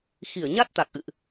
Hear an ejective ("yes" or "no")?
no